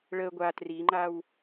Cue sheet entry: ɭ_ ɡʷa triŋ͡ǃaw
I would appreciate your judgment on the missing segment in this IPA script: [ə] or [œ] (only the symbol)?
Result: ə